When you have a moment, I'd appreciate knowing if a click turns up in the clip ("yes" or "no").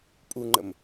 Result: yes